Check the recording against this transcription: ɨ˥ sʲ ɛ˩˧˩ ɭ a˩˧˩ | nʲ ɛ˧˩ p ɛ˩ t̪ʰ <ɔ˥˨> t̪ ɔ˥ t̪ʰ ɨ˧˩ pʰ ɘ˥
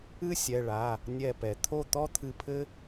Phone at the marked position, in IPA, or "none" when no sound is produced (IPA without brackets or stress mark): o˥˨